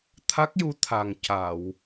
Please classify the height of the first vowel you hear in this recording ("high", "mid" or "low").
low